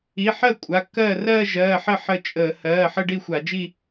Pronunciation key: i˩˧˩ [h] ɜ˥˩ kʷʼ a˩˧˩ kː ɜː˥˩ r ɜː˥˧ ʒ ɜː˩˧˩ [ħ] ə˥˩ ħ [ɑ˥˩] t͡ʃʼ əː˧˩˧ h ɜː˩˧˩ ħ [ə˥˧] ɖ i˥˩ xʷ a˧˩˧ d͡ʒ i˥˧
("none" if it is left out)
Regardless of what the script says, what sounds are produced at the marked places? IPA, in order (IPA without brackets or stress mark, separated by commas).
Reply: ħ, ħ, ə˥˩, ə˥˧